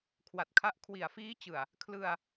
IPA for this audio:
kʰwa˨˩t̚kʰa˦˥ʔ kʰwi˨˩a̯fiː˦˥t͡ɕɯ˨˩a̯ | kʰlɯ˧a̯

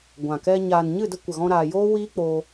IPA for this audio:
ɡʷã˨kɛ˧ ɲaː˨nɲɨ˦˨də˧ kʷə˨ɣɔ̃˧ɾaː˨joː˦ wiː˦k͡poː˧

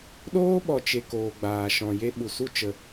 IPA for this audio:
ɗoː˦ɓɔ˨ t͡ʃe˧koː˨ ɡ͡baː˨ ʃɔ̃˨je˦ɓu˨ su˦t͡ʃə˨

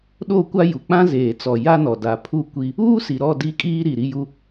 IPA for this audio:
ɗo˦˨kʷa˦ ju˨k͡pã˦zeː˨t͡sɔ˨ ja˦nɔ˨ da˨pʰu˦ kʷi˦ | uː˦si˨ɾɔ˦˨ di˦kʼiː˦ ɾi˨ɾi˦ju˦

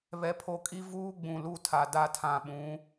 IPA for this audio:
βɛ˦pʰo˦ kʼi˦vuː˦ ɡ͡bũ˨lu˦˨tʰa˨da˦˨ tʰã˨ɓũ˨˦

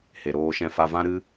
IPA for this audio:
he˨ɾoː˧ʃɛ̃˧ fa˧vã˦ ɾɨ˦

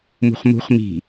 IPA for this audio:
mṳχmṳχ mi̤

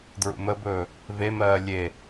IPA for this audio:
dɹṵməbɵː | vemɜː lʲe

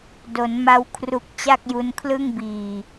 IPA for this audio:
do˩˦nma˧wkʰru˨˩k̚ t͡ɕa˥˩k̚ju˧nkʰlɯ˥˩ŋbiː˨˩

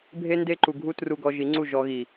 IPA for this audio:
bʱe˦nde˦ ǃu˧ ɡʱu˦tru˧ɡɔ˧ ʒi˨˦ŋ͡ǀu˦˨ ʒɔ˧ɣi˨

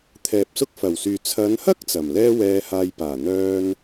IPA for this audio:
t̪ʰɛː˨p̚sʊ˥k̚ fɐ˨˩wsyː˨ t͡sʰɐ˨˧nhɐ˥k̚ t͡sɐ˨˩m lɛː˥wɛː˧haː˧jpaː˨˩ n̪œː˥n

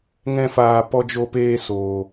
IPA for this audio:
ŋɛ̃˧faː˨ pɔ˧d͡ʒo˧peː˧ soː˨

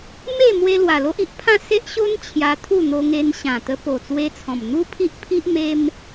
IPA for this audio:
me˥˧mwe˧ lwa˨˩lo˦ʔi˦ʔpʰã˥˧ se˦ʔɕo˦n t͡ɕʰja˧t̪ʰu˥˧n̪o˧ŋe˧n ɕã˨˩t̪ə˧ po˨˩t͡swe˧t͡sʰɔ̃˨˩m n̪u˦pʰi˦ʔpʰi˦ʔ me˧m

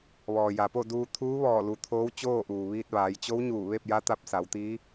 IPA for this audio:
ʋɔː˩ja˩po˥˨duː˧ t̪ʰuː˧˥ʋɔː˧˩lu˩˧ t̪ʰoː˧˥wt͡ɕoː˥˨ʔuː˩ʋiː˧t̚ ʋaː˩˧jt͡ɕo˧˥wɲuː˧˩ ʋe˥˨p̚ja˧˥t̪a˧p̚ sa˩˧wt̪iː˧˥

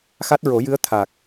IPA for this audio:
xa˦˥t̚ɹo˨˩˦jɨ˧˥ə̯ t̪ʰa˨˩k̚

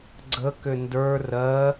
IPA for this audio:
ɡ͡ǀəkʏ ndə˞ rɜ

